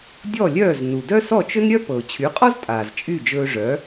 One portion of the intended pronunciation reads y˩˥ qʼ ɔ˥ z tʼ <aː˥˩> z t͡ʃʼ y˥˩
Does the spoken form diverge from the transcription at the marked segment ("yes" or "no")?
yes